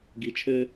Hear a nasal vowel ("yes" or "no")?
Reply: no